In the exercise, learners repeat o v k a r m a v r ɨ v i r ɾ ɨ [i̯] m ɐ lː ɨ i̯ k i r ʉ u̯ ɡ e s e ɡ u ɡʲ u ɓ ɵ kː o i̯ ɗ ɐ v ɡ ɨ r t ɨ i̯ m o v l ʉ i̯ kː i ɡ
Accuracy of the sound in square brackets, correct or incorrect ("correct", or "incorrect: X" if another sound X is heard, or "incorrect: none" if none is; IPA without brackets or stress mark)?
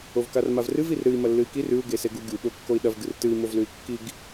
correct